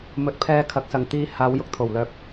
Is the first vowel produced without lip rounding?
no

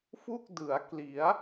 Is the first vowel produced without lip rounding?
no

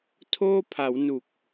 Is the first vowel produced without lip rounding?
no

